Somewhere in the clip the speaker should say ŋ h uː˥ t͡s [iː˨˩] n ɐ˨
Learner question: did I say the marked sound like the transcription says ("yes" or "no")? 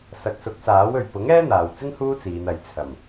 no